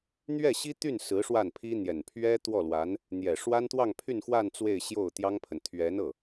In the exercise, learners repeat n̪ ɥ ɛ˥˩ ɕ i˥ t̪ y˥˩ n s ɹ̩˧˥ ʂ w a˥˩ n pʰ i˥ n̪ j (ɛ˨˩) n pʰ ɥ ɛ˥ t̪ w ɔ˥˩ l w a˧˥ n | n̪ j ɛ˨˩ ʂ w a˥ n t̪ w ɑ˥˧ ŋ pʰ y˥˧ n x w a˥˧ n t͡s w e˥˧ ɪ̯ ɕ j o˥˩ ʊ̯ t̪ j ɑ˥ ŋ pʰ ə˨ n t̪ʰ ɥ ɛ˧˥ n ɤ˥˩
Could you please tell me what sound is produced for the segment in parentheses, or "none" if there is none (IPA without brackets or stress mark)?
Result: ɛ˨˩